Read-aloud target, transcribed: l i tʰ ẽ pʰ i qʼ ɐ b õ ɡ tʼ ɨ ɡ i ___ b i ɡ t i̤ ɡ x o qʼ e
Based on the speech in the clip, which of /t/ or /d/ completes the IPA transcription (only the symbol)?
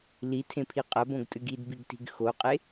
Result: d